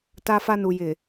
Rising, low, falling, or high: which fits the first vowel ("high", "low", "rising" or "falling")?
low